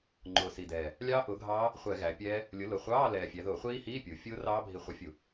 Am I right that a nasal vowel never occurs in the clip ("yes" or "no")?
yes